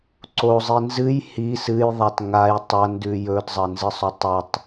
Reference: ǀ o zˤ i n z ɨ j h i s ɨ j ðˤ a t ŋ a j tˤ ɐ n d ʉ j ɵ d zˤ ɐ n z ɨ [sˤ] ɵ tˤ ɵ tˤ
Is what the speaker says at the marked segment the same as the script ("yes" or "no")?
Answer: yes